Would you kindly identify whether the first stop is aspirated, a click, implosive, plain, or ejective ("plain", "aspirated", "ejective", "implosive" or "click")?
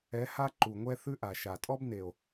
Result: click